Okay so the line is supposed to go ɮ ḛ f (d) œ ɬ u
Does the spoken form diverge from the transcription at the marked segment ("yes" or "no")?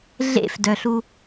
no